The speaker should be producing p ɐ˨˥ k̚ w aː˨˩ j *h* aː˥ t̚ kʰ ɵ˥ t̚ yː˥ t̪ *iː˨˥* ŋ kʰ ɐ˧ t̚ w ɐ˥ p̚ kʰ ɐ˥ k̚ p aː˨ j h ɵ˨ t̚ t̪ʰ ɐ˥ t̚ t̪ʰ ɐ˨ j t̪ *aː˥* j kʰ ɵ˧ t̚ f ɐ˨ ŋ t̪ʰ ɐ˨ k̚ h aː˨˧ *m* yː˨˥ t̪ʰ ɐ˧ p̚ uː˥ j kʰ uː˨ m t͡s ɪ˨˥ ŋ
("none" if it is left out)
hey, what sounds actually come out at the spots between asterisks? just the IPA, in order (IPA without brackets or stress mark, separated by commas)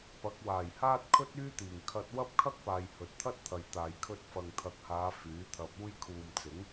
h, iː˨˩, aː˨, f